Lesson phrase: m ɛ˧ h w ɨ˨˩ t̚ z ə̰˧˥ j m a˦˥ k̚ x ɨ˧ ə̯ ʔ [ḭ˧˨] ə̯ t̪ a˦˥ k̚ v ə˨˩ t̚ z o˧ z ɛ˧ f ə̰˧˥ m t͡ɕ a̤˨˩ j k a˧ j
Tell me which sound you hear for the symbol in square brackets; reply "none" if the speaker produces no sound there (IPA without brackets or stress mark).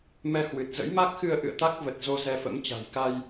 ɨ̰˧˨